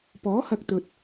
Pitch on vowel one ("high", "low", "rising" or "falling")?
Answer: rising